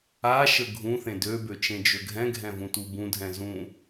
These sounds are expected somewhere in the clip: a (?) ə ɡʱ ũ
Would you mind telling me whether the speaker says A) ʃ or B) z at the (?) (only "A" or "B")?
A